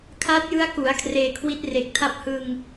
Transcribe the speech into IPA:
kʰ aː˦˥ t̚ j ɯ˦˥ a̯ k u˩˦ a̯ kʰ r eː˧ kʰ w i˦˥ t̚ r e˨˩ k̚ tʰ a˦˥ p̚ h ɯ˧ ŋ

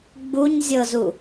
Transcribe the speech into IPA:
ɡ͡b u ɲ zʲ ɤ z u

